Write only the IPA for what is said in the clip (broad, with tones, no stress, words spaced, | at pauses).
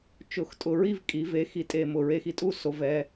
t͡ʃʊ˨˩xtʼʊ˨˩ɹi˥˧v kʼi˩˧ve˩˥ xi˩˥tʼe˨˩mʊ˨˩ ɹe˧xi˨˩ tʼu˥˧so˩˧vɛ˩˧